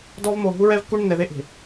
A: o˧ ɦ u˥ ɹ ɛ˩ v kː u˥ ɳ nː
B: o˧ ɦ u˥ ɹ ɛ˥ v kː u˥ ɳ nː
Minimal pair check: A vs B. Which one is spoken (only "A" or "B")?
B